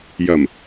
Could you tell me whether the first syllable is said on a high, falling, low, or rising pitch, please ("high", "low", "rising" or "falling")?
low